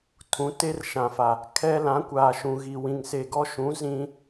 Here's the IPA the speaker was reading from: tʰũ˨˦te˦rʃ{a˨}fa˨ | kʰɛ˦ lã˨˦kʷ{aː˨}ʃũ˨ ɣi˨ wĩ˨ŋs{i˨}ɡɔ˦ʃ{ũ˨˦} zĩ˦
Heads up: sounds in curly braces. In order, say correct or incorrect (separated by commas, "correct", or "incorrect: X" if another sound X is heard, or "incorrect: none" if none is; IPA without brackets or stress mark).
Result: incorrect: ã˨, correct, incorrect: e˨, correct